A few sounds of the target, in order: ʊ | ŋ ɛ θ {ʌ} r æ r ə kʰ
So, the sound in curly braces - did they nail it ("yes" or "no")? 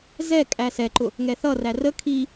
yes